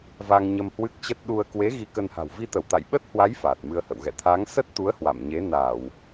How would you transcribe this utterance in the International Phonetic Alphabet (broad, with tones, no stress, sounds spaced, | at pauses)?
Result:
v a˧ ŋ ɲ ə˧ m h w ɨ˦˥ k̚ t͡ɕ ə˦˥ t̚ ɗ u˧ ə̯ k w e˨˦ ɣ i˧ k ə˧ n h a̤˨˩ w v i˧ t̪ ə˧˩ w t̪ a̰˧˨ j ɓ ə˦˥ t̚ h w a˨˦ j f aː˨˩ t̚ m ɨ˧ ə̯ h ə̰˧˨ w ɣ ɛ̰˧˨ t̪ʰ aː˨˦ ŋ s ə˦˥ t̚ t̪ u˨˦ ə̯ h w a̰˧˨ m ɲ e˨˦ n aː˧˩˨ w